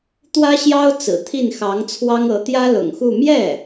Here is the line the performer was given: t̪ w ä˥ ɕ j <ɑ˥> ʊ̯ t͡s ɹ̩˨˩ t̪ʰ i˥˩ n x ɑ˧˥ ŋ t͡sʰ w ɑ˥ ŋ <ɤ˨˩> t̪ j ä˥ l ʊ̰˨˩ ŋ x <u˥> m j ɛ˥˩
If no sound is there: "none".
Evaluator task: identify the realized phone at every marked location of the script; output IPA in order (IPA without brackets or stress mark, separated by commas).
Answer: ɑ˥, ɤ˧˥, u˥˧